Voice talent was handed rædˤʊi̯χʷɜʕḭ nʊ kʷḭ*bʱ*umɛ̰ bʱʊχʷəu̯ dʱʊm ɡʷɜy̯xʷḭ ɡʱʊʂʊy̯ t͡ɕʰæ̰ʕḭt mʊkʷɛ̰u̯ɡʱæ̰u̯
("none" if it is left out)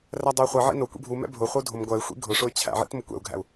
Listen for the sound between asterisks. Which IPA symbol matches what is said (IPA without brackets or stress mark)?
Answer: bʱ